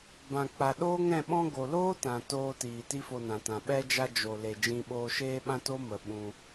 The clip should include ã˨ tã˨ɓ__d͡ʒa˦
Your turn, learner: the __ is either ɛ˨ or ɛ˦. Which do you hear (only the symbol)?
ɛ˦